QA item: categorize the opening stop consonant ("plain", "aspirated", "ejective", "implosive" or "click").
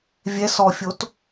plain